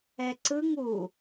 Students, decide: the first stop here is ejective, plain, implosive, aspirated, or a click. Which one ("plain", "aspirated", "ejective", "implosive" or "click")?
click